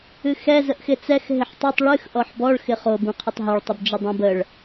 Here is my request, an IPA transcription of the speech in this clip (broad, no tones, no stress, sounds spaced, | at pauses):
ɨ x ɛ z ə ʔ x ɪ t͡s ɛ x ɦ ɪ ħ tˤ ɯ tˤ ɭ ɨ x ʔ ɔ ħ b ɔ ɭ x ɪ χ o b ũ qʰ ɪ tˤ ɦ ɯ ɭ tˤ ɪ b d͡ʒ ə dˤ ũ b ə ɭ